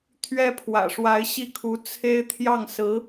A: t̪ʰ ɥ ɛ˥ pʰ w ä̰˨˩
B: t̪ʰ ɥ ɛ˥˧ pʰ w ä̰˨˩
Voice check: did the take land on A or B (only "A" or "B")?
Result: A